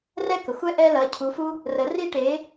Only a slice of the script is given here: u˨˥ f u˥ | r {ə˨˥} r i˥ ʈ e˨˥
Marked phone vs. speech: correct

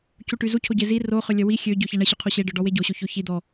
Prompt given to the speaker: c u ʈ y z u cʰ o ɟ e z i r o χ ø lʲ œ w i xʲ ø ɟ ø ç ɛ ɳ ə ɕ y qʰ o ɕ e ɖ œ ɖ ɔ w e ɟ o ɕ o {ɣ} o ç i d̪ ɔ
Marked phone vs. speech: incorrect: ç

